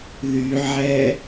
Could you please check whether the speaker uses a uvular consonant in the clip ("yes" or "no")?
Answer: no